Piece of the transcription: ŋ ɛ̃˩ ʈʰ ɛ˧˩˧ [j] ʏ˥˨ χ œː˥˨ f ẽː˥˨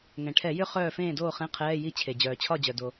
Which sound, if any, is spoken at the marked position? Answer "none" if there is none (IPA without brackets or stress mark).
j